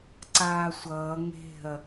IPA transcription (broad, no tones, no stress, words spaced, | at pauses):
ǀaːsʷʌː ŋe̤ɐ̯